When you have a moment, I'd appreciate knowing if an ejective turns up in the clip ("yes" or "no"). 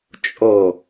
yes